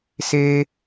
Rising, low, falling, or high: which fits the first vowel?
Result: high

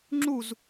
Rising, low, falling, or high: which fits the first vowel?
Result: falling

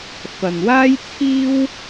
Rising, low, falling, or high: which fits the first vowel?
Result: low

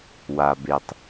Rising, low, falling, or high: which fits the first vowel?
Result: low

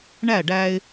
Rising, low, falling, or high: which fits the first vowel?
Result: falling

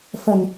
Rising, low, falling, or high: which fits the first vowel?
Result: low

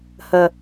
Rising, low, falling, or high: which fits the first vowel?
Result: low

